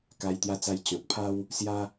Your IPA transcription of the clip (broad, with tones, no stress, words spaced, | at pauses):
ka˧jt̪ja˧t͡sa˧j t͡ɕɔ̃˨t̚pʰa˦w | sja˧